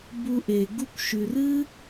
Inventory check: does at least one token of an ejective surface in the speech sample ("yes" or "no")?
no